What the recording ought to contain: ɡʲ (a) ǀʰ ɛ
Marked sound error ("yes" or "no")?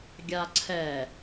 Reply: no